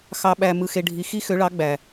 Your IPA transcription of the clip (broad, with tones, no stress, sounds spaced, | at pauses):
x ɑ˨ ɓ æ˨ m ɯ˨ x e˨ ɖʱ i˨ x i˥ x ø˨˥ ɭ ɑ˨˥ ɡ͡b æ˨